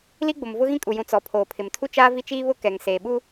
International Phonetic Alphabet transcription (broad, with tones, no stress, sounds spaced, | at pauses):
l i˦ ɡ͡b ʊ˨ m v ʊ˦ ɣ ĩ˦ kʼ u˨ j ũ˨ t͡s ɔ˨ pʰ oː˨ pʰ ɪ˨ m tʰ u˦ t͡ʃ aː˦ v i˦ t͡ʃ iː˦ β ʊ˦ k ɛ˨ ŋ s eː˨ ɓ uː˦